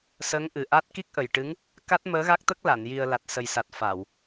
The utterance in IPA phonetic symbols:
s əː˧˥ ŋ ʔ ɨ˨˩ ʔ a˦˥ t̚ k i˦˥ k̚ ʔ ə˨˩ j ʈ ɨ˧˥ ŋ | k a˦˥ t̚ m əː˧˥ ɣ a˦˥ k̚ t̪ ə˦˥ k̚ l a˨˩˨ n j i˨˩ ə̯ l a˨˩ t̚ s ə˨˩ j s a˨˩ t̚ f a˨˩˨ w

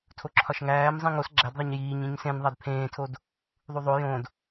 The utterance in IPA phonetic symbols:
tʰ o ǁʰ ɒ ʃ ŋ æː m zˤ ĩ ŋ o s ɡ͡ǁ æ d ðˤ e ɲ j iː ɲ ĩ ɲ s ẽ n ðˤ æ d pʰ ẽː tʰ o d | ðˤ u ðˤ o j õ d

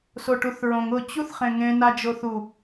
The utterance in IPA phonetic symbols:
s o ʈ u θ ɹ õ ŋ ʊ t͡ɕ u θ χ ẽ ŋ ẽ n a d͡ʒ o θ u

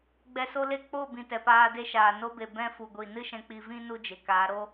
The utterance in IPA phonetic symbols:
ɡ͡b ɛ˧ s o˦ l e˦ k͡p o˦˨ b ĩ˨ t ɛ˨ p aː˧ d e˦ ʃ aː˨ n o˧ b e˨ b ɛ̃˧ f u˨ ɡʷ i˨ n ɨ˦ ʃ ɛ̃˧ k͡p i˧ v ĩ˦ n u˦ d͡ʒ e˨ k aː˨˦ ɾ o˦

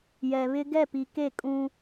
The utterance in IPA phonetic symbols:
j ɛ˨ β ɪ˦ ɡ ɛ˦˨ p i˨ k e˦˨ kʼ ũ˦

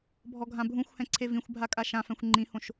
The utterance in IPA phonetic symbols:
bʱ ɔ ɡʱ ã bʱ ũ xʷ h ɛ̃ ǀʰ e v ĩ xʷ bʱ a kʼ a ʃ ã f ɛ̃ xʷ ŋ͡ǃ ĩ h õ ʃ

